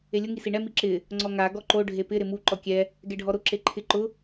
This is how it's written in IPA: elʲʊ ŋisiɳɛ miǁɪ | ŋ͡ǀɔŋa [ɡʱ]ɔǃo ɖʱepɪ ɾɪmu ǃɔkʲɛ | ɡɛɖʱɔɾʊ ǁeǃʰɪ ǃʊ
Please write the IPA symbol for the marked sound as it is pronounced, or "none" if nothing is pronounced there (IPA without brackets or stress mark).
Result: ɡ